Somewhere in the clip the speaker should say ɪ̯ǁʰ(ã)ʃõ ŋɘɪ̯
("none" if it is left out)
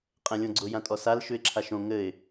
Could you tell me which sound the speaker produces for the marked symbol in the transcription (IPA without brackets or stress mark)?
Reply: a